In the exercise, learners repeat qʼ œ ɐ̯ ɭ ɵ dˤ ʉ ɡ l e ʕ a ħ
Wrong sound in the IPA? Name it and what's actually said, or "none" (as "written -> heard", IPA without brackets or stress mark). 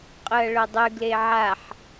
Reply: œ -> ɵ